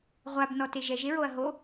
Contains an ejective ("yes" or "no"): no